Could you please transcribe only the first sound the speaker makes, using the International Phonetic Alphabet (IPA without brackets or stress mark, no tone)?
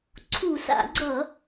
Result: ǀʰ